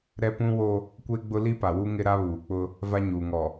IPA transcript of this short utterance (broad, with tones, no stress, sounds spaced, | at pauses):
ɾ ɛ˦ p ũ˦ w o˦ | kʷ e˦ ɡ͡b ʊ˦ l i˦ p a˨ w u˦ ŋ ɪ˦ ɾ a˦ β uː˨ k͡p ʊ˦ | v a˦ ɲ uː˨ ŋ ɔ˨